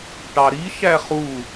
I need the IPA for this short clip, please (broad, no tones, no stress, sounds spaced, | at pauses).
ʈ ɑ ɾ i ʃ æ χ u